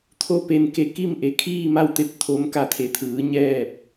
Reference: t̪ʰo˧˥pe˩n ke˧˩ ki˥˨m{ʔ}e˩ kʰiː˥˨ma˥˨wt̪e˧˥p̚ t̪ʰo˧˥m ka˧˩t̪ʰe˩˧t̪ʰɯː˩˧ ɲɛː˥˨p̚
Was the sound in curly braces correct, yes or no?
yes